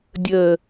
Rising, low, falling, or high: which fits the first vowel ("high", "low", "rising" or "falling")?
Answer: low